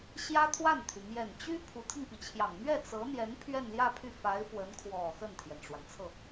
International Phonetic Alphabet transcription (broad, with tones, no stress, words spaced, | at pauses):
ɕjä˥t̪ʰwa˥˩nt̪ʰy˩ mjɛ˨˩nt͡ɕy˥ pʰu˧˥t̪ʰi˧ŋpi˩t͡ɕʰjɑ˨˩ŋ mɥɛ˥˩ t͡sɤ˧˥n̪jɛ˧˥n pʰɥɛ˥˧nljä˥˧pʰy˥˩ fa˧˥ɪ̯fwə˧˥n kʰwɔ˨˩ xə˥˩nt̪ʰjɛ˩nʈ͡ʂwa˩n t͡sʰɤ˥˩